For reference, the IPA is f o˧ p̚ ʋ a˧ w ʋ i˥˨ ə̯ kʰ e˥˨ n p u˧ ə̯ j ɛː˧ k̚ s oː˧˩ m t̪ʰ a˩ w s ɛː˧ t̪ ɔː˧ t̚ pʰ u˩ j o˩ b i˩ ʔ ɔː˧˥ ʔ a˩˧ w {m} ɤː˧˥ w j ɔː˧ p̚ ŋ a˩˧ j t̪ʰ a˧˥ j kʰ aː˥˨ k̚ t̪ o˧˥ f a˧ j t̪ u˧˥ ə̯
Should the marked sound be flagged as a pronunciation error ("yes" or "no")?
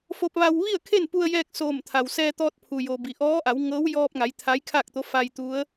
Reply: yes